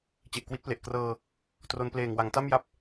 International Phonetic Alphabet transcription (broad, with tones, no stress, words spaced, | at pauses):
t͡ɕe˨˩ʔkwi˦˥t̚ple˨˩ʔ krɤː˧ | tro˧npleː˨˩ŋwa˩˦ŋ ta˥˩mja˦˥p̚